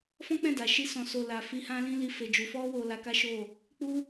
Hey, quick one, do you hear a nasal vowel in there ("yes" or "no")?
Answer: yes